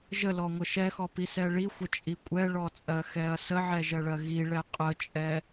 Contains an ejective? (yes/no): yes